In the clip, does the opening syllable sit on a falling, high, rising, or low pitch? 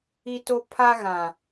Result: high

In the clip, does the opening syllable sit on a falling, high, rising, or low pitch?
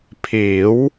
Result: rising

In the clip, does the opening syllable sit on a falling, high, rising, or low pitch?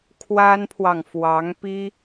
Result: high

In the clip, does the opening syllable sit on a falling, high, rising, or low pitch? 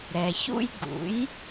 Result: low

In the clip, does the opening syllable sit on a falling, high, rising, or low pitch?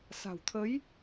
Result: low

